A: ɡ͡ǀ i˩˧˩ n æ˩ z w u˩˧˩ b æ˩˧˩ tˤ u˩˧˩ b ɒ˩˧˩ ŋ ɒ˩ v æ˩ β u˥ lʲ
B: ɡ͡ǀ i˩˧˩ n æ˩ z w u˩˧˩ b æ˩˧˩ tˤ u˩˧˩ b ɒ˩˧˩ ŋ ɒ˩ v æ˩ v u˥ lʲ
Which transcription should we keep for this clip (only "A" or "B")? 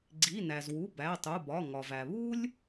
A